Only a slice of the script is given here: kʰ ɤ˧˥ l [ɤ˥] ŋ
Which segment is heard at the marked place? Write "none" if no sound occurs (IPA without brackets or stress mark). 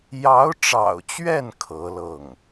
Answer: ɤ˥˩